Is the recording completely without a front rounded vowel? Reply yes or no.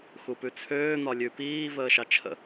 no